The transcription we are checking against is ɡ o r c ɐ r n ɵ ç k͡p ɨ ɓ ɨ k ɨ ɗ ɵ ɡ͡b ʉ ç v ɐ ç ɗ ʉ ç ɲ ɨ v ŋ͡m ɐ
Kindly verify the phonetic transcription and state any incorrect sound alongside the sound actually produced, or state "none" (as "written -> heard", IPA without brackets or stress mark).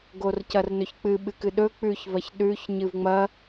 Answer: ɡ͡b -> k͡p